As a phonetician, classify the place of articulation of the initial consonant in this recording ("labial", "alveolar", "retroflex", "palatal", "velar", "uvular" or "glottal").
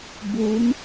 labial